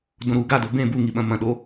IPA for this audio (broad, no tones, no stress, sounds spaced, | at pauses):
d õ ɾ u ɡ a d o b ẽ b u ŋ i ɓ ɐ̃ m ɐ̃ ɗ o